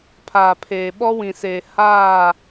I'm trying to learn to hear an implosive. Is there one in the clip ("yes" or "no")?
yes